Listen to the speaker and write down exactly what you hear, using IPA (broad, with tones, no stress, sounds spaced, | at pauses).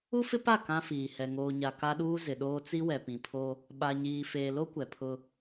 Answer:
u˦ f ɪ˦ p a˦˨ k ã˦ f iː˨ h ɛ˨ ŋ oː˨ ɲ a˨ k a˦ ɗ uː˦ z ɪ˨ ɗ oː˦ t͡s i˦ w ɛ˨ p ĩ˨ pʰ o˦ | ɓ a˨ ɲ iː˨ f eː˨ l o˦ kʷ ɛ˨ pʰ ʊ˦